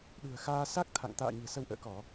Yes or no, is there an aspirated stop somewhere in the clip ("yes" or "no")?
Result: yes